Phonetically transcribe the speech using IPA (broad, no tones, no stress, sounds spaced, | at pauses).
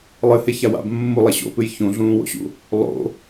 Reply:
lˠ ɨ h e ç a w a̰ b mː u lˠ e ɕ o̰ p ɨ j ç ũ ɮ ũː w o̰ ɕ ṵ | lˠ o̰